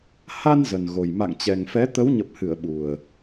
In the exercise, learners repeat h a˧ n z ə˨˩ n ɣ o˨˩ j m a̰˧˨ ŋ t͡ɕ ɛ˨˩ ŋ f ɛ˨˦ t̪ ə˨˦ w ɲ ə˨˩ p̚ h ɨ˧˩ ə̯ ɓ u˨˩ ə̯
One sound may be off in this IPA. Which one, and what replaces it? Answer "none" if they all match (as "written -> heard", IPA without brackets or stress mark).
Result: none